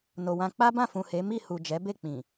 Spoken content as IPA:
n o˨ w ã˧ k͡p a˦ b ã˦˨ f ũ˨ h e˨˦ m i˦˨ h u˨ d͡ʒ ɛ˨˦ b e˦˨ k͡p ĩ˨

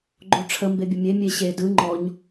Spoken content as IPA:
ɡ͡ǃ o ʈ͡ʂʰ ə m b e bʲ ə mʲ e mʲ e ɕ e d ɯ ŋ͡ǃ ɔ ɲ

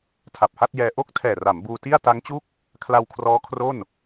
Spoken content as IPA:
tʰ a˨˩ p̚ h a˥˩ t̚ j ɛː˧ ʔ o˥˩ k̚ tʰ ɛː˨˩ r a˩˦ m b uː˧ t i˥˩ a̯ t a˦˥ ŋ t͡ɕ u˥˩ k̚ | kʰ l a˧ w kʰ r ɔː˦˥ kʰ r o˥˩ n

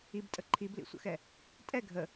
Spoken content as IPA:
i b tʼ ə ǃʰ i b l ḭ sʷ ə̰ x ɛ | tʼ ɛ ɡʱ ə

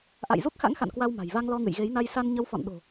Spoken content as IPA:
ʔ a̰˧˨ j z u˦˥ k̚ x a̰˧˥ ŋ x a̰˧˨ n k w a˧ w m a̤˨˩ j v a˧ ŋ l ɔ˧ ŋ ɨ̰˧˨ j ɣ e˨˦ j n a˧ j s a˧ n ɲ ə˨˦ w f ɔ̰˧˨ n ɗ o̤˨˩

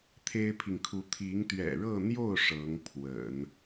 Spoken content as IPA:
t̪ʰ e˥ ɪ̯ pʰ i˨ ŋ kʰ u˧˥ t̪ʰ i˧˥ ŋ t̪ ɥ ɛ̰˨˩ ɻ ɤ˥˧ n̪ j o˥˩ ʊ̯ ʂ ɤ˧˥ ŋ pʰ w ə̰˨˩˦ n

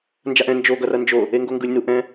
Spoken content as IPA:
n d͡ʒ a ʔ ɛ̃ n d͡ʒ o ɡ ʌ r ʌ n d͡ʒ o | e ŋ ɡ o ŋ ɡ ɯ lʲ n u ʔ ɛ̃

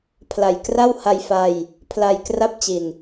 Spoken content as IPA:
pʰ l a˨˩ j k r a˥˩ w h a˧ j f a˧ j | pʰ l a˧ j k r a˥˩ p̚ t͡ɕ i˨˩ n

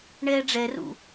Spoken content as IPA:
ɳ ɛː ɖ͡ʐ ɛ r ṵ

